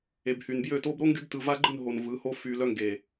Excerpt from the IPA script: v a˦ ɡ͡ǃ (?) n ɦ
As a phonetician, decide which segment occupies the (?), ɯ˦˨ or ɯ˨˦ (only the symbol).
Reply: ɯ˦˨